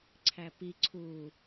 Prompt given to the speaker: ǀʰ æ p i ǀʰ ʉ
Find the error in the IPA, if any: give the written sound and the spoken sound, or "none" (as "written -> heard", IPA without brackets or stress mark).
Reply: ʉ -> u